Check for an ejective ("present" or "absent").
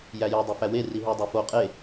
present